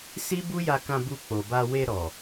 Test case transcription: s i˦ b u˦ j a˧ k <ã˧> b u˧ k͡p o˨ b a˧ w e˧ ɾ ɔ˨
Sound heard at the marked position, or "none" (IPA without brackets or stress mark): ã˧